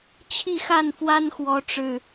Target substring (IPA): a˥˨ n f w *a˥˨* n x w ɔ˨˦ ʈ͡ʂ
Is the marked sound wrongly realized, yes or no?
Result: yes